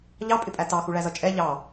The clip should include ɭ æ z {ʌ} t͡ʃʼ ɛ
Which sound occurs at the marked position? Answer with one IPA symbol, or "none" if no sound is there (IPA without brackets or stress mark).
ʌ